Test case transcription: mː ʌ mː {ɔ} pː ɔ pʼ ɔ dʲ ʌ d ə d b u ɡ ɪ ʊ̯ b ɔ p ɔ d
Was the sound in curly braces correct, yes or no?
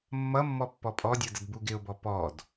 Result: yes